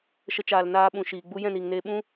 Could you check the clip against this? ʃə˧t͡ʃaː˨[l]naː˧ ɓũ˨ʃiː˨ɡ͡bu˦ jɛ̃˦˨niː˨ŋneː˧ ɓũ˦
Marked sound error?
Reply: no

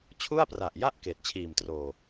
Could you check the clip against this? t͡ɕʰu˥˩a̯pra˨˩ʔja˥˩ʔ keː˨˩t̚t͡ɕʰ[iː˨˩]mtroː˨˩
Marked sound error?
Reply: no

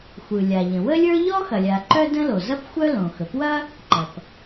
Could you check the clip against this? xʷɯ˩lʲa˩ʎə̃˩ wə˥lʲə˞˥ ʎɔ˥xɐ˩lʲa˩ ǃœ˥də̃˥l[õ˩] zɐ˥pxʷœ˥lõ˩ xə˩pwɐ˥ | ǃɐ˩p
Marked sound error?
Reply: yes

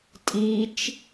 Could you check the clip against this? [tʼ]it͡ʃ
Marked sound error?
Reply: no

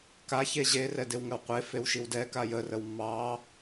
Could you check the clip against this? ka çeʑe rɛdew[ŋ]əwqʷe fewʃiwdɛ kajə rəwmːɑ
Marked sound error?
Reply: no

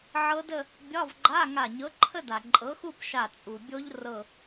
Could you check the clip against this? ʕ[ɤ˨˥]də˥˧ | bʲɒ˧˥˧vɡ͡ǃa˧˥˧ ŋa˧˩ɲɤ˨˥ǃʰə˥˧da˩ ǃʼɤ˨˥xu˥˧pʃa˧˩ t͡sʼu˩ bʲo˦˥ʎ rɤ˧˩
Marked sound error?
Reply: yes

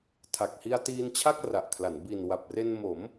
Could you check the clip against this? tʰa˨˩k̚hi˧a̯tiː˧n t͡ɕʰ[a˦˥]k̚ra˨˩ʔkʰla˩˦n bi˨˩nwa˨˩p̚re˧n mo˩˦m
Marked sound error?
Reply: yes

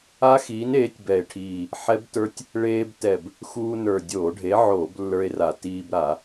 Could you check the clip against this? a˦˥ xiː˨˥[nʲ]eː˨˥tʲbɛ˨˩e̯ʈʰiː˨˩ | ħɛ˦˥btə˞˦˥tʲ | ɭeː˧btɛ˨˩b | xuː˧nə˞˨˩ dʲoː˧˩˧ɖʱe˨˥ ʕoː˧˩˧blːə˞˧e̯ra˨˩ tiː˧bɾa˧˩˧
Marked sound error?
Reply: yes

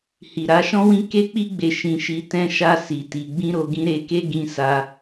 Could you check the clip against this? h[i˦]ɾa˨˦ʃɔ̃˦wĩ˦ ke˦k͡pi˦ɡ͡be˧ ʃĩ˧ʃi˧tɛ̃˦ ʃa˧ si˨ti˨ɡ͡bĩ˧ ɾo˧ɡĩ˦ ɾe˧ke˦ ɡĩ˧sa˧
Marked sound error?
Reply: yes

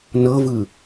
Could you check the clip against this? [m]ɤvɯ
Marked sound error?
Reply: yes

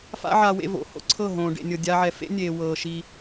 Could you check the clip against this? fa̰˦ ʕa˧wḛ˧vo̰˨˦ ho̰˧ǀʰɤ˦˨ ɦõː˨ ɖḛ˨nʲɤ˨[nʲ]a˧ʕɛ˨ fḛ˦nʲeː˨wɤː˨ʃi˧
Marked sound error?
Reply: yes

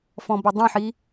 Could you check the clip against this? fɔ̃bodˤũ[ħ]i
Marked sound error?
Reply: no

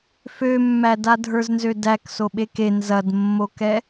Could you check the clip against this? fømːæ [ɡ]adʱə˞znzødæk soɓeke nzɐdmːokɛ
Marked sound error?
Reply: yes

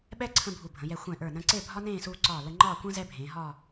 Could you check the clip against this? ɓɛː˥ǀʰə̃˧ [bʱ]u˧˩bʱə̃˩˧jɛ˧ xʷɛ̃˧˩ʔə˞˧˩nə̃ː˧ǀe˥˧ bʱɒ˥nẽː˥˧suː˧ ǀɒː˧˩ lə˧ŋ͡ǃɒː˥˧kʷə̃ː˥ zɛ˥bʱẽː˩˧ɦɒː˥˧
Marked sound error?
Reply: no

